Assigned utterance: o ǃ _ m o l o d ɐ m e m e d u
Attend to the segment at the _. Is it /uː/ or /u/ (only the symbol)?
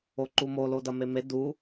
u